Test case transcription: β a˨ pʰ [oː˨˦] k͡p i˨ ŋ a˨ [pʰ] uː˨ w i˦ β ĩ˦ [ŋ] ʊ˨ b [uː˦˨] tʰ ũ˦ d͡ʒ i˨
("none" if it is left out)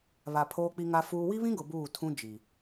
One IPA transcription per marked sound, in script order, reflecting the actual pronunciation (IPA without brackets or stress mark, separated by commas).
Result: oː˨, f, ɡ, uː˦˨